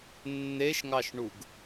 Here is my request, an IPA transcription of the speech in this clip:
nː e ʃ ŋ ɑ ʃ ɳ u ɡ

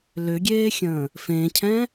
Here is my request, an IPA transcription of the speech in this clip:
l ʏ ɡʲ eː xʲ ə̃ː | f ẽ cʰ ɛ̃

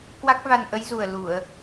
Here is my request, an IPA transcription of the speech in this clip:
k w a˦˥ k̚ v a˧ n ʔ ə˨˦ j z u˨˩ ə̯ l u˧˩˨ ə̯

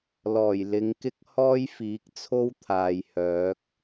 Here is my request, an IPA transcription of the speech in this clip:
l ɔː˨˩ j l ɪ˨˧ ŋ k ɪ˥ k̚ h ɔː˥ j f iː˨˥ k̚ t͡sʰ o˥ w t̪ʰ aː˨ j h œː˨˥ k̚

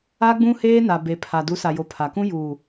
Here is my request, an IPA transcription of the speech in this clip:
a˦ ɡ͡b ũ˦ h eː˦ n a˨ b e˨ pʰ a˨ d u˨˦ s a˨ j o˨ pʰ a˨ k ũ˦ j uː˨

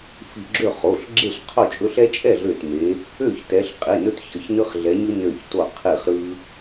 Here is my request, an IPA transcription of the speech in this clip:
f i˧˩ ɡ͡ǁ ø˥˨ χ o˩˧˩ ɬ ɡ͡ǁ e˥˨ ɬ qʰ o˥˨ t͡ʃʼ ɵ˦ ɬ ɛ˦ t͡ʃʼ ɛ˥˨ ɮ ø˧˩ t m e˨˦ | ø˥˨ ç t ɛ˨˦ ɬ qʼ i˩˧˩ n ɵ˦ t ç ʌ˩˧˩ ç n ɯ˦ χ ɮ ɛ˨˦ ɲ ɯ˦ n ø˧˩ ç t o˧˩ qʰ i˧˩ χ ɾ ɯ˦

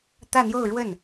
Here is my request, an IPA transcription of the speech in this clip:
t̪ ä˥˧ n̪ j o˥˧ ʊ̯ ɻ w ə˥˩ n

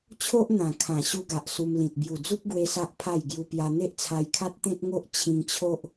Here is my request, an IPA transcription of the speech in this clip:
t͡ɕʰ o˦ ʔ n̪ ã˨˩ kʰ ã˨˩ ɕ u˦ ɡ a˨ ʔ s u˧ m l ĩ˨ t̚ b j u˨˩ d͡z u˦ p̚ ɡ w e˦ s a˦ ʔ pʰ a˥˧ j ɡ j u˧ p j a˧ n̪ e˦ ʔ t͡sʰ a˧ j kʰ a˦ t̚ t̪ ẽ˦ t̚ ŋ o˦ ʔ t͡ɕʰ ĩ˧ ŋ t͡ɕʰ o˦ ʔ

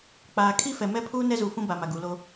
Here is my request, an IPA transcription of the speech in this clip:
k͡p aː˨ kʰ i˦ f ɛ˨ m ɛ˦ pʰ uː˦ n ɛ˦ z uː˨ f ũ˦ b a˨ m a˨ ɡ uː˨ l o˦

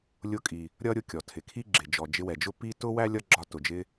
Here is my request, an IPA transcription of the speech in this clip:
lʲ ʊ˧ kʼ i˩ | ɾʲ ʌ˥ ɾʲ ʊ˧ kʲ ɔ˩ tʰ ɪ˩ kʰ i˥ ɡ͡ǁ ɪ˩ d͡ʒ ɔ˩ d͡ʒ ɪ˧ w ɛ˩ d͡ʒ ʊ˥ p i˥ t ʊ˥ w æ˥ lʲ ʌ˥ ɡ͡ǁ ɒ˧ t ʊ˩ d͡ʒ ɪ˧

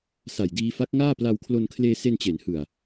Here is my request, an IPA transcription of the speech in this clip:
s a˨˩ j d iː˧ f a˦˥ k̚ ŋ aː˥˩ p l a˧ w kʰ l o˧ n kʰ l eː˧ s e˧ n t͡ɕ e˩˦ n h ɯ˨˩ a̯

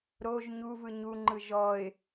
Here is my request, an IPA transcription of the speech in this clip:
ɾ o ʒ ɲ u v ɯ ɲ u ŋ͡ǃ ɯ ʒ ɔ ɪ̯

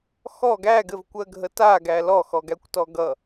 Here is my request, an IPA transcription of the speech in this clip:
x ɔ ɡ æ ɡ ɘ v kʷ ɜ ɡʱ ə t a ɡ æ l ɔ x ɔ ɡ æ kʷ t ɔ ɡ ʌ

